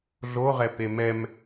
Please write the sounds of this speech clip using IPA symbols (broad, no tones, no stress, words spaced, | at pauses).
ɮoʁɛpe mɛm